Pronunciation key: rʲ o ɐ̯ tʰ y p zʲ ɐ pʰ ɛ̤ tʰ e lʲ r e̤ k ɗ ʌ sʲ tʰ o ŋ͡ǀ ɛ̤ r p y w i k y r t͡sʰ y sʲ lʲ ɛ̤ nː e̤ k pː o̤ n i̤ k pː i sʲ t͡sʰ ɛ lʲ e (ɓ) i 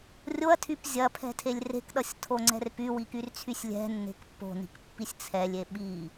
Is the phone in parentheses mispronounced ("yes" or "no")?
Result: no